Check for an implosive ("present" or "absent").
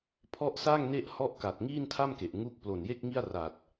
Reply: absent